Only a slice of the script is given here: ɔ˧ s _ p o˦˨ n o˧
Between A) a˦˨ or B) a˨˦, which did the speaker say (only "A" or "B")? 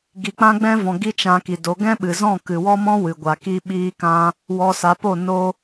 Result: B